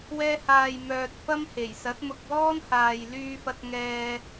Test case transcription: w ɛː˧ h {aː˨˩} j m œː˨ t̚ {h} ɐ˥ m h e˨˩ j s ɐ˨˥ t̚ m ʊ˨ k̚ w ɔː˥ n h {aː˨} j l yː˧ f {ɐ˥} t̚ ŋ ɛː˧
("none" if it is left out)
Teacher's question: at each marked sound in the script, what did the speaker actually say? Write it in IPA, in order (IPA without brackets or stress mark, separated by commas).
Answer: aː˨, f, aː˨, ɐ˧